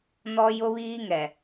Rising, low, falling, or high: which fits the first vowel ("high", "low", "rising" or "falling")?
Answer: high